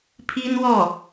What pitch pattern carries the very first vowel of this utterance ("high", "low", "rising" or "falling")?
high